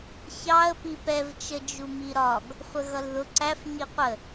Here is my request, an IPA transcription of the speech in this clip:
ç ɑ ə̯ p i p ɛ v t͡ʃ ə d͡ʒ u m i ɾ ɒ ɡ | χʷ ə ɣ ʌ l ð ʊ ǀ æ f ɲ i qʷ ə

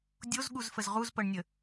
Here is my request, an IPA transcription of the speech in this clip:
dʲ o z ɠ u z f ə z ʁ u z p ɤ ɳ nʲ ə

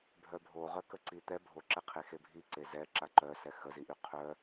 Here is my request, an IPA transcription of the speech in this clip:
bʱ œ bʱ o ʁ œ k ə ǀ i t̪ ɛ bʱ o ǁ ɛ qʰ e x e bʱ i ǀ e z ɛ ǁ a ǃ œ s ɛ x ə z i ʔ y qʰ œ

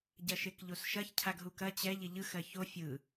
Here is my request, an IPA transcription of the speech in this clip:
ɟ ɐ ʃ e k ʎ o s ʃ ɐ ç cʰ a ɡ ɦ u k ɐ t͡ɕ ɛ ʎ ɪ ʎ ɯ x ɜ ç o fʲ ɯ

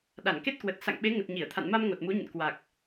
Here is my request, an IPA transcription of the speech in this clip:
ɗ a˧˩ n k e˦˥ t̚ k w ə˨˩ t̚ s a̰˧˨ ŋ ɓ e˨˦ ŋ ə˨˩ t̚ ɲ i˧˩ ə̯ t̪ʰ a̰˧˨ n m a˧ m ŋ o˨˩ t̚ m u˨˦ ɲ ə̰˧˨ n k w a˨˩ k̚

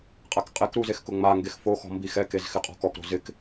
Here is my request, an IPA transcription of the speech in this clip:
qʼ a k qʼ ɛ k ɾ u z e x k ʊ ŋ͡m a ŋ ɡ e x f o x ɔ̤ m b i x ɛ k e z x ɪ qʼ ɔ̤ k ɔ k ɾ o̤ z ɪ k

